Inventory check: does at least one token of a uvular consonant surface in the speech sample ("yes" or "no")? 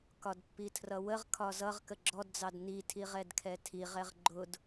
yes